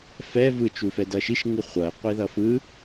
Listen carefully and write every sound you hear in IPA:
fɛ vɯt͡ʃufɛ dʌʃiʃ ŋɯχʷʌe̯ qʷiðʌfɯ

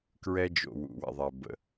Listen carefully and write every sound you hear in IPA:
kɹɛ˦d͡ʒo̰˨ wṵ˨wɛ̰˨ðˤɛ˨ bə̰˨

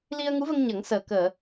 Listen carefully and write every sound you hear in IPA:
li˧ə̯ŋu˧˥və˧ŋ ɲə˨˩˦ŋsəː˨˩ kəː˨˩˨

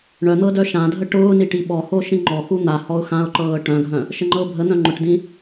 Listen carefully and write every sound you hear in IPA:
ɳœn̪ɤ dœʃãdʱə ʈʊːni ʈiɓɔho ʃĩŋ͡ǃɔxu n̪a hɔʊ̯xãʊ̯ǃɤː ʈœ̃ɡʱœ̃ | ʃəŋ͡ǃɤʊ̯bʱən̪œ̃ ŋ͡ǃʊʈdĩ

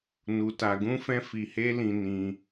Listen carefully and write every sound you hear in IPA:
nu˧ta˧ɡũ˦fɛ̃˦ fi˧he˦lĩ˧ nĩ˧

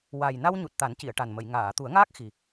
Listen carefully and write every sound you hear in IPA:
wa˨˩j na˧wɲu˨˩t̚ t̪a˨˩˦nci˨˩˨ə̯ ʈa˨˩nmə˨˩˨jŋaː˨˩˨ t̪u˨˩˦ə̯ŋaː˦˥k̚xi˨˩

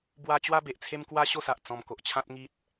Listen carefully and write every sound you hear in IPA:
bwa˧ t͡ɕwa˦be˨ʔt͡sʰe˦mkwa˦ ɕo˥˧sa˨ʔ t͡sɔ̃˧mko˨ʔt͡ɕʰã˦t̚ ŋi˦t̚

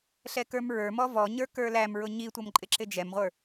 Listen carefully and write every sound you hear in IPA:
ɬɛkə˞mɹə˞mɔ vɔɲə˞ kə˞læmɹʊ ɲitʷʌm ǃʼɪǁɪd͡ʒɛmʁʷə˞

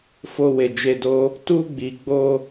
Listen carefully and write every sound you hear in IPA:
fo˧we˨d͡ʒe˧do˦ | tu˧ɡ͡bi˨ɡ͡bo˧

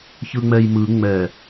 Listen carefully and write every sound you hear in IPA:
çɯŋ͡mɛjmɯ ŋ͡mɛ

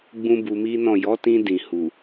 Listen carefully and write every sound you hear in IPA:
ɡ͡bũ˦bu˧mi˦nɔ̃˦˨ jɔ˨˦tĩ˧ dĩ˨hu˨

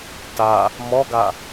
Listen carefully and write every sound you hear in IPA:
ta | mɔɡa

